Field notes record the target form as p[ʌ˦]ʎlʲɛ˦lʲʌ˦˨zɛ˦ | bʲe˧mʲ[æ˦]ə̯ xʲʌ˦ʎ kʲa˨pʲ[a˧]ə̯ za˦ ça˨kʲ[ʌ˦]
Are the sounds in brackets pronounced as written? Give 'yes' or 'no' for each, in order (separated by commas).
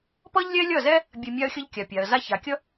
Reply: yes, no, no, yes